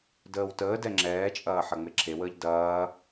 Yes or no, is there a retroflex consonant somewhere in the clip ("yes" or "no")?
no